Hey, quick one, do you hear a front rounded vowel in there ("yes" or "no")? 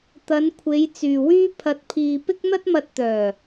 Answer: yes